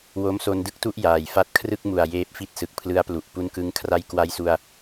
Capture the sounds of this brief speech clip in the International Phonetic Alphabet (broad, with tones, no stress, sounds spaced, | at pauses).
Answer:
w o˦˥ m s o˧ n d ɯ˥˩ k̚ t u˥˩ ʔ j aː˨˩ j f a˥˩ t̚ kʰ r ɯ˥˩ k̚ m u˨˩ a̯ j eː˦˥ p̚ f i˥˩ t̚ s ɯ˨˩ k̚ pʰ l ɯ˦˥ a̯ p l u˨˩ ʔ p u˧ n k ɯ˧ ŋ kʰ r a˦˥ j k w a˦˥ j s u˧ a̯